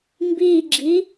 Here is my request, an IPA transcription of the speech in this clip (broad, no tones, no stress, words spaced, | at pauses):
mbiɡ͡ǁi